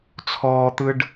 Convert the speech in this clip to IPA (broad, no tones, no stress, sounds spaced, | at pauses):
t͡sʰ ɔː t̪ ɯ ɖ